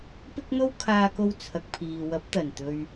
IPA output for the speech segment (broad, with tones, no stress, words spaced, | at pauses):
pɪ˥k̚n̪o˥wkʰaː˧ko˧w t͡sʰɐ˨k̚pʰiː˨wɐ˨˥p̚ t̪ɐ˨˩nt̪ɵ˨ɥ